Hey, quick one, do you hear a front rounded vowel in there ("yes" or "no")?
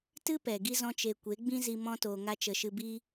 no